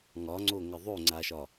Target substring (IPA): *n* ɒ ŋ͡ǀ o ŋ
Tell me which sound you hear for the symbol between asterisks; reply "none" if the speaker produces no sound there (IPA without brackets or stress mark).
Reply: ŋ